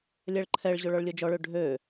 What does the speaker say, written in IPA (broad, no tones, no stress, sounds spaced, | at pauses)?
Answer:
lʲ ɛ ɭ ǃʰ ɛ ɭ ʑ ɵ ɭ ɔ ɭ lʲ ɵ d͡ʒ ɔ ɭ ø ɖʱ ø